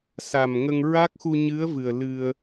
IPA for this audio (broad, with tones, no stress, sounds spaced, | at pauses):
s a˨˩ m ŋ ə˧ ŋ ɹ a˦˥ k̚ x u˧ ɲ ɨ˧˥ ə̯ v ɨ˨˩ ə̯ l ɨ˧ ə̯